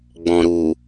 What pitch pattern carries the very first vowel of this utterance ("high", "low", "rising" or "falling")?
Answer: low